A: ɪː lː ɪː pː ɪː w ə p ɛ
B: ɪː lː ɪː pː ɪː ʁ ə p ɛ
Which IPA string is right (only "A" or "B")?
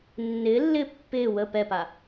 A